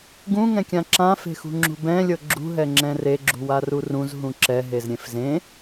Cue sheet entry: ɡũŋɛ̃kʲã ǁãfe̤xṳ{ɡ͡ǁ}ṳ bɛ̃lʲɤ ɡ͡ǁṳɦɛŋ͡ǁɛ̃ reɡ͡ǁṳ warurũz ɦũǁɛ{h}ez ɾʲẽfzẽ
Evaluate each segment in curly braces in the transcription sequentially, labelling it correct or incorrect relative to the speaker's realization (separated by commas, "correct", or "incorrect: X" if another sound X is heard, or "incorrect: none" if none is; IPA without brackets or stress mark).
incorrect: ŋ͡ǁ, incorrect: ɦ